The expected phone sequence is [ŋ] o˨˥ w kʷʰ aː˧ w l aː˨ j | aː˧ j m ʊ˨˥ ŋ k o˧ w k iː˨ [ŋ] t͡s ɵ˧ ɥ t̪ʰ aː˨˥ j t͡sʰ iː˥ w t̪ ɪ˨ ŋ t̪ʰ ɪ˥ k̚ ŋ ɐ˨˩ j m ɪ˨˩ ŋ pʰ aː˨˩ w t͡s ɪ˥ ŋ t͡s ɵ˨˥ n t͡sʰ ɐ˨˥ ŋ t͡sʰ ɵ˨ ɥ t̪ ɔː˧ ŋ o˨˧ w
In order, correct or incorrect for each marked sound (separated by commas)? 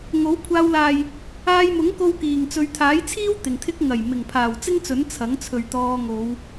correct, correct